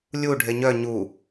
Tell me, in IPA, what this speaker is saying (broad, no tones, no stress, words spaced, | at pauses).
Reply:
lʲu ɖʱeɲœ ɲu